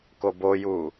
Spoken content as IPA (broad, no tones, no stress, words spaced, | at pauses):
koboju